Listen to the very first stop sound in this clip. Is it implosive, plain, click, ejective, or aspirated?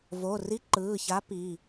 click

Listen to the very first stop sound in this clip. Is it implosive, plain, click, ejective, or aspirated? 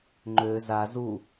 click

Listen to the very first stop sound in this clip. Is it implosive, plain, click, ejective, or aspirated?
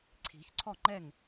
click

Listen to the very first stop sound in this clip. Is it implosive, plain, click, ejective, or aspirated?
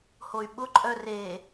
implosive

